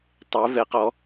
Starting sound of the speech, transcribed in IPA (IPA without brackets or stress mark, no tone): tˤ